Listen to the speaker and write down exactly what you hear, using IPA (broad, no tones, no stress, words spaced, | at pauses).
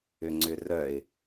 ʏŋ͡ǀʏrœɪ̯